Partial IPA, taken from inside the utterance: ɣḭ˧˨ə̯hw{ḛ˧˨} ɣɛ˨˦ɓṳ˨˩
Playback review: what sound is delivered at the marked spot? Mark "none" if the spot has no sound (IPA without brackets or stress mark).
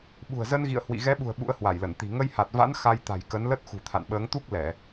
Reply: ḭ˧˨